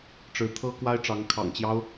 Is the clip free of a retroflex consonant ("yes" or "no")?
no